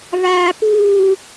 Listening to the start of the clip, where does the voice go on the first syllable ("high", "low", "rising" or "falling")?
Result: high